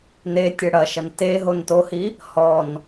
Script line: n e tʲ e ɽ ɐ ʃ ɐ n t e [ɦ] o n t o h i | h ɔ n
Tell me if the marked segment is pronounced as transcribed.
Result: yes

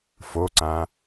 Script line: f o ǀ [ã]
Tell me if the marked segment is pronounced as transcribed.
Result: yes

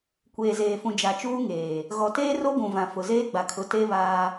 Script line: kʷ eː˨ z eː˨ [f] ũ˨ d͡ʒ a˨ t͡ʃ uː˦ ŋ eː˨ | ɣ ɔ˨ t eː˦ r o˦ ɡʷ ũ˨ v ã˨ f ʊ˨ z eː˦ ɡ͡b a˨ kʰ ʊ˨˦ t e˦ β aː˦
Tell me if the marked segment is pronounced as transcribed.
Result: yes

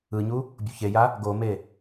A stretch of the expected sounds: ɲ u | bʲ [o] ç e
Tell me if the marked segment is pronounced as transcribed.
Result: no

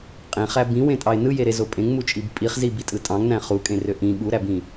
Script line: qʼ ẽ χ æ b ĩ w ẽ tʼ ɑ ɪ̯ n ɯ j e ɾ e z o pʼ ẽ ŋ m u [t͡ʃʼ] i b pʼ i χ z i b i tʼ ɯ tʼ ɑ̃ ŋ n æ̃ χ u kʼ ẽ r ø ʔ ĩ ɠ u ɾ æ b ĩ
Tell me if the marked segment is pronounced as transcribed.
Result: yes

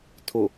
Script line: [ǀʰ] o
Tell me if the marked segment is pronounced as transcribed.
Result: no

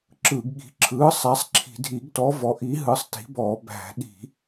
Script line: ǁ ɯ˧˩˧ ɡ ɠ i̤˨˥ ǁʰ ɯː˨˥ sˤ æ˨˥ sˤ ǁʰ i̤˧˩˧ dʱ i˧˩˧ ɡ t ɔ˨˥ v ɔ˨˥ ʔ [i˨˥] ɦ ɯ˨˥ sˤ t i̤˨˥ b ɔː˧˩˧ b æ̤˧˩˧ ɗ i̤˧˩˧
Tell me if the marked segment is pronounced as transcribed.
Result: yes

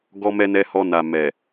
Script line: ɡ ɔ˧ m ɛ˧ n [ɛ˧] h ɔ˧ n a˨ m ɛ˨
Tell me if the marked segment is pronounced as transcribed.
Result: yes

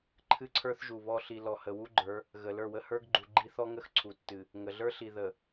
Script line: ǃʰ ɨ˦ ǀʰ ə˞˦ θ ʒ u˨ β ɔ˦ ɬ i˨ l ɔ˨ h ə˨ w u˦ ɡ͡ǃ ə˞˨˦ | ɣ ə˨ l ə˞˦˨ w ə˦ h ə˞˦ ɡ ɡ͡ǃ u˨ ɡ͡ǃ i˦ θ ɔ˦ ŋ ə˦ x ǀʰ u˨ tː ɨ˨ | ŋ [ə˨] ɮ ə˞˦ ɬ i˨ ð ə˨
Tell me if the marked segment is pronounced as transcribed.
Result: yes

